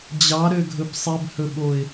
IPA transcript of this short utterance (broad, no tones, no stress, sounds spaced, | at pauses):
d͡ʑ ɑ ɾ ø ɡʱ ɵ b sˤ e b h ɵ ɓ o ɪ̯